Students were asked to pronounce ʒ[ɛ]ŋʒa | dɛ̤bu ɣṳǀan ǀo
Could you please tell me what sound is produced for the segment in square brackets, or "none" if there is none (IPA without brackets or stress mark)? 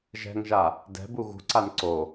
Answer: ɛ̤